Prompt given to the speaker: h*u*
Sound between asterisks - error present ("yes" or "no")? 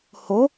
yes